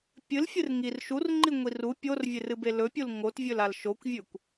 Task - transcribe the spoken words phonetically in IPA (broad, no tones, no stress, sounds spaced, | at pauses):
pʲ ɨ l fʲ ɨ r ŋ i r ʃ u r ŋ͡ǃ i ŋʷ i r u pʲ o r vʲ e r ɨ b e l ɵ pʲ u l ŋ o t vʲ ɵ l a l ʃ o kʷ vʲ ʉ kʷ